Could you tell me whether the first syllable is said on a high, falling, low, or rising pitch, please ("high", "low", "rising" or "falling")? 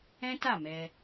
high